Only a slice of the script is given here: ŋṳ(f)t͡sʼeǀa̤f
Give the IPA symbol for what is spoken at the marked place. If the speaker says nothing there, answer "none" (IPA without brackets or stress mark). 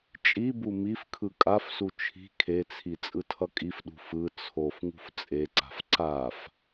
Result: f